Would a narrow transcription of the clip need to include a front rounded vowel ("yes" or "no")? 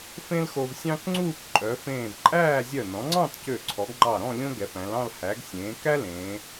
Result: yes